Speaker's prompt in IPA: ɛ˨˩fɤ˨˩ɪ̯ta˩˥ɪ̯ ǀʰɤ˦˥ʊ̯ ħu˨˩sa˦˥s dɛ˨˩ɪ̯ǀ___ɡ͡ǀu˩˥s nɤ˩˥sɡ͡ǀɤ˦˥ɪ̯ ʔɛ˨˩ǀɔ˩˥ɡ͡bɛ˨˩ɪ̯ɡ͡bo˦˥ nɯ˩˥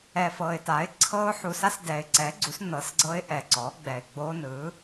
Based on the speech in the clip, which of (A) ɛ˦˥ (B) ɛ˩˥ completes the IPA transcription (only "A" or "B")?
B